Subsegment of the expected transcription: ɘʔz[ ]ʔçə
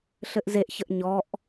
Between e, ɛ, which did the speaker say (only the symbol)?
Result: e